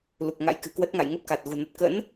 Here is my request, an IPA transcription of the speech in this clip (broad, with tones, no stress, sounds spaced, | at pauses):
l u˨˩ k̚ ŋ a̰˧˥ j k ɨ̤˨˩ k w ə˦˥ t̚ ŋ a̰˧˨ j ŋ ə˦˥ p̚ k a˨˩ t̚ ɣ ṳ˨˩ n ə˨˩ t̚ k ə̰˧˥ n